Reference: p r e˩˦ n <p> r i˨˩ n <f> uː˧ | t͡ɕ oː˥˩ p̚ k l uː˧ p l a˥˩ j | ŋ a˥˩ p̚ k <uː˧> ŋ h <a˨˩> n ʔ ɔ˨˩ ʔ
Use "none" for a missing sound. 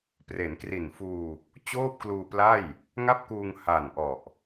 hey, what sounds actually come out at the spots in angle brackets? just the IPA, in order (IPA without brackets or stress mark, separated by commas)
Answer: k, f, uː˧, a˨˩